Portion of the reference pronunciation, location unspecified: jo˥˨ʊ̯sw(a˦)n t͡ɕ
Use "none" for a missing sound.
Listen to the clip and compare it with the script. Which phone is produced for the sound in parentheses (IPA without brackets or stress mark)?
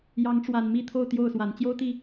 a˨˦